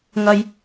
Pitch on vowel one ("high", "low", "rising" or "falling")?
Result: high